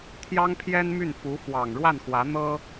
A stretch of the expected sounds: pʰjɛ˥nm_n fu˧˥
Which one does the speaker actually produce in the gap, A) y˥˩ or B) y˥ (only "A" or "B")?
A